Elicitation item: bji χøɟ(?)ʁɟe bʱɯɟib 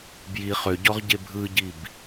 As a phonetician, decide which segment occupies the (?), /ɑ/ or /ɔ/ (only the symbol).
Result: ɔ